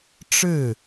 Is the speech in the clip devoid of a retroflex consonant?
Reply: no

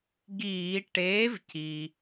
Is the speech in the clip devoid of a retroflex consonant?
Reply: no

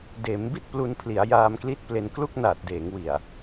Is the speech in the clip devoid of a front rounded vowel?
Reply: yes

